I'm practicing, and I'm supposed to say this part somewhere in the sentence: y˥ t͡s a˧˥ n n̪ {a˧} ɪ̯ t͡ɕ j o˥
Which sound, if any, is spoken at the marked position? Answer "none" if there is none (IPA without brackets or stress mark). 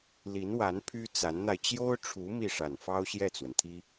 a˧